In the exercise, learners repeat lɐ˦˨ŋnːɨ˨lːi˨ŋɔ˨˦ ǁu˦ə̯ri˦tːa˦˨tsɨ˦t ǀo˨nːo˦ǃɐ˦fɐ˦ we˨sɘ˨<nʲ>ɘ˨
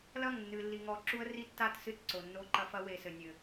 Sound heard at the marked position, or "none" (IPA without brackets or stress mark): nʲ